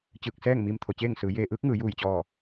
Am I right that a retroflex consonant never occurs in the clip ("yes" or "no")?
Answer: yes